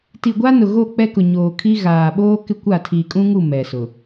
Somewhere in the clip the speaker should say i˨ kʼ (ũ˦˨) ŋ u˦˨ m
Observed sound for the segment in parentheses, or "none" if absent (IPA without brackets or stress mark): ũ˦